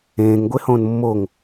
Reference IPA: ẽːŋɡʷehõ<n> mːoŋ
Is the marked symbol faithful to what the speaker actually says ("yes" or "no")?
yes